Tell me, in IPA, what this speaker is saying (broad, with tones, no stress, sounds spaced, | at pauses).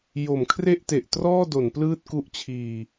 j o˩˦ m kʰ r e˥˩ ʔ t e˨˩ ʔ t r ɔː˥˩ d o˩˦ n p l ɯː˥˩ t̚ k u˦˥ ʔ t͡ɕʰ iː˨˩